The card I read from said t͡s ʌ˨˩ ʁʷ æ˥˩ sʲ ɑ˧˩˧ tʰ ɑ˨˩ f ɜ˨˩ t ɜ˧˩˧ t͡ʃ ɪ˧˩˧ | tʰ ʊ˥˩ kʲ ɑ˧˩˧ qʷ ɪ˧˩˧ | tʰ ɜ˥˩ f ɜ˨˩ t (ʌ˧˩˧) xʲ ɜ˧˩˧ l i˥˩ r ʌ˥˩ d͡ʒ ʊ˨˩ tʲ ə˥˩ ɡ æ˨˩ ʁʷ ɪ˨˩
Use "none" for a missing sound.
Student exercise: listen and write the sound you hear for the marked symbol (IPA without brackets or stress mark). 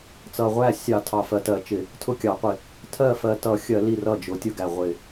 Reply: ʌ˧˩˧